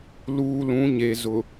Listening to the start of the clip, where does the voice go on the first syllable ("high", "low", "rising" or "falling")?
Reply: low